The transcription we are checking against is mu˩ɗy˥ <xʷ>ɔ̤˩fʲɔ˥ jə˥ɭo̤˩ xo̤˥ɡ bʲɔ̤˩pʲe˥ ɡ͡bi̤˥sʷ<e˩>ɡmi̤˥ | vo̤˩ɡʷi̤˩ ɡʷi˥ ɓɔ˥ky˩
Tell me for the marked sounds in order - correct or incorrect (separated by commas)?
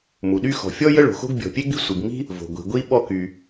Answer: incorrect, incorrect